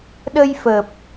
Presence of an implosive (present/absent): present